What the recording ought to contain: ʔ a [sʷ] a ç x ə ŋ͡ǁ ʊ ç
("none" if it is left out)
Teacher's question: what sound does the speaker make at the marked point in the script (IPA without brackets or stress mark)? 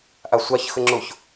sʷ